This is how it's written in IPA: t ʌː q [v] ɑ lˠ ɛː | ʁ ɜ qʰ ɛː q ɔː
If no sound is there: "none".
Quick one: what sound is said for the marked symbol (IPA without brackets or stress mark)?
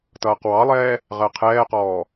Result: w